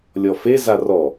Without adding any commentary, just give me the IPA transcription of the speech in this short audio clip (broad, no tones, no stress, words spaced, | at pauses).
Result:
lʲɔfe zarɔ